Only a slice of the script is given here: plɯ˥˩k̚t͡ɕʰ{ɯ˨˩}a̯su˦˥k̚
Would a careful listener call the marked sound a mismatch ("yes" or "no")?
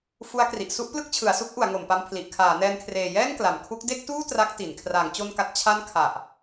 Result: yes